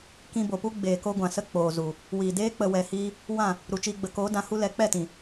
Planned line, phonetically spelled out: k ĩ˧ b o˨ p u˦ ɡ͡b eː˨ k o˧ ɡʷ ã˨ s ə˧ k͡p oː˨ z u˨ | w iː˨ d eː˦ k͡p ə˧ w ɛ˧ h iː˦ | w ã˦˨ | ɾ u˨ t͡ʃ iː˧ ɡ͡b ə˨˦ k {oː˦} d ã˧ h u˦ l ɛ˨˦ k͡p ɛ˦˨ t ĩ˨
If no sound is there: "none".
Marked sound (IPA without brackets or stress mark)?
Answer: oː˨˦